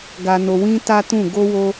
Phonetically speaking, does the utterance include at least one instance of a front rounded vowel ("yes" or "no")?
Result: no